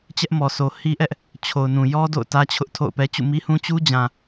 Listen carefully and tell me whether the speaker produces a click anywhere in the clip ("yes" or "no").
no